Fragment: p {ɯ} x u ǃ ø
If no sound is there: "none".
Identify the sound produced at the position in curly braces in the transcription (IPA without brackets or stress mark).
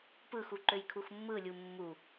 ɯ